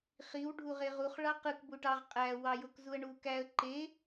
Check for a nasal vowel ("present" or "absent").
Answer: absent